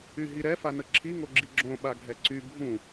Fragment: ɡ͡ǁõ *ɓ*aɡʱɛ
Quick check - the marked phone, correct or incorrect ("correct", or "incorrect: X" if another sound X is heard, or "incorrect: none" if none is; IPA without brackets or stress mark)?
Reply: correct